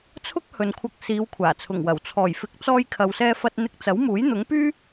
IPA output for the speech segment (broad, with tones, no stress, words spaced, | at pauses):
t͡sʰʊ˥k̚hɵ˨nkʷʰɐ˧k̚ siː˨˧wkʷʰaː˨˩t͡sʰʊ˨˩ŋwɐ˨˩w t͡sʰɔː˨˩jfɪ˨˥k̚t͡sɔː˧j kʰɐ˨wsɛː˧fɐ˧t̚ n̪ɪ˧k̚t͡sɐ˨˥wmuː˨˥j n̪ʊ˨˥ŋpyː˥